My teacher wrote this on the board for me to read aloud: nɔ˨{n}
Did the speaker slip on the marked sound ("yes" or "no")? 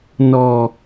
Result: yes